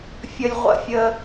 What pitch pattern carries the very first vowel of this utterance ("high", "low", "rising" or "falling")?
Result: low